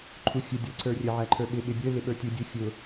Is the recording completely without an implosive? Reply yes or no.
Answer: no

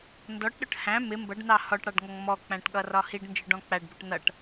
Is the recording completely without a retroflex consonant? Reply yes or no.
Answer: no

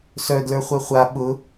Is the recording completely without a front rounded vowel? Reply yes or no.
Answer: no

